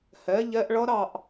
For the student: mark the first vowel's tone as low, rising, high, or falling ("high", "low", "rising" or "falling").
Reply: rising